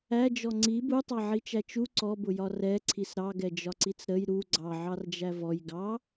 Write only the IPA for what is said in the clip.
æd͡ʒɔ ŋ͡ǀi butˤɑʕit͡ʃæ t͡ʃu ǀɔbʊjɒ rɛǀʰis ɾɑɡɛd͡ʒɒǀit͡s ɾəj ɾu ɡ͡ǀɑʕɑrd͡ʒæ vɔj ɡɑ

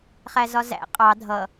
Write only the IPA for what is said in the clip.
χæzɒzæ̰ qʼɑ dʱʌ

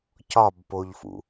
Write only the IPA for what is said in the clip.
cɒbpoʎfṵ

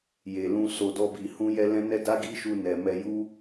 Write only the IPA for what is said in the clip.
je˨lũ˧ so˧dɔ˦bi˧ hũ˦jɛ˦lɛ̃˦ nɛ˦ da˦ɡi˦ʃu˧ nɛ˨mɛ˧ ju˦

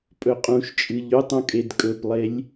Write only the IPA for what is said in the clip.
pʼɵqʼũʃt͡ʃʼɨ ʎʉtˤũ kʼedkʼɵplˠelʲ

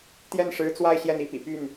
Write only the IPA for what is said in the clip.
t̪jɛ˥˩nʂɻ̩˧˥ t͡swa˥˧ɪ̯ ɕjɛ˥˩ni˥pḭ˨˩ py˥˩n

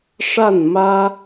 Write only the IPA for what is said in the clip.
ʂa˥˩n mä˥

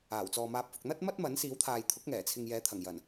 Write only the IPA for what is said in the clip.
aː˨˩wt͡sɔː˨maː˨˥p̚ fʊ˨k̚n̪ɐ˥t̚mɐ˥t̚mɐ˨˥n siː˨˥wt̪ʰaː˨j t̪ʰʊ˨˥k̚ŋɛː˨˩t͡sʰɪ˨ŋ jɛː˨˥t̪ʰɐ˨˩ŋjɐ˨˩n

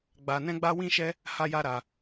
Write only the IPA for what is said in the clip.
ɡ͡ba˧nɛ̃˦ɡ͡ba˦ wĩ˦ʃɛ˦ | ha˦ja˦ɾa˧

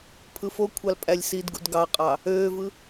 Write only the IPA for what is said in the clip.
pʰɯfokʷʰɑl pʼælʲsidɡṵd ɡɑqʼɑ | øːvɯ

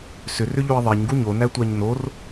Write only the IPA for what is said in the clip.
sʏrʏʎoi̯ ðˤeɲɡu ɲonætʷæɲ nor

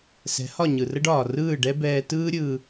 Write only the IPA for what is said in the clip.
sɛ̤˩˥hɒ˥˩ɲɯ˩rə˥ɖ ɒː˩rɯː˥˩ɖɛ˥ bɛː˧ tɯː˥ɾʲɯː˧

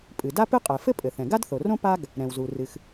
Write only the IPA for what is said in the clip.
pʼɨ˩da˥pɨ˥qʼɛ˩ fɘ˥pʼɘ˩θɛ̃˩ ɡa˥dθo˩rõ˥ pa˥ɡ | ɾɛ̃˩wzu˩ rɨ˩x

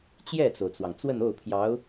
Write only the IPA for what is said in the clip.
t͡ɕjɛ˥˩t͡so˩ʊ̯t͡swɑ˩ŋ t͡swə˥˧no˥˩ʊ̯pʰjɑ˧˥ʊ̯

